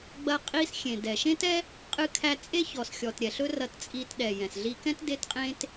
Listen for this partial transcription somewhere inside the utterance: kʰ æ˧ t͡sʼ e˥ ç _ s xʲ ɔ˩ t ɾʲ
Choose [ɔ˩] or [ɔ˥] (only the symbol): ɔ˩